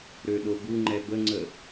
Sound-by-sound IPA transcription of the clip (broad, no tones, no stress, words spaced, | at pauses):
ɾøɗobuŋ͡ǃɛ bəŋ͡ǀə